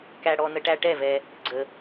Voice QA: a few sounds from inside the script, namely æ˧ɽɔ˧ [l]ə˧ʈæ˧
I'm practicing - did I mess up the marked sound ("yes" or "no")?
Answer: yes